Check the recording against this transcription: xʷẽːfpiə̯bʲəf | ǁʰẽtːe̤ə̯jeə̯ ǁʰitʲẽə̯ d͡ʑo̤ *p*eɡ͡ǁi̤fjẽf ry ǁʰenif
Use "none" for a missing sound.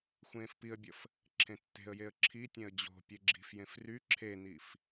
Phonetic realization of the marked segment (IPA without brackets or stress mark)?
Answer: pʲ